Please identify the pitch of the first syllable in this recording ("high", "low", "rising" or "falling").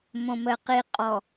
low